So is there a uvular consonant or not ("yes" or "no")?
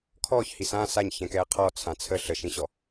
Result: yes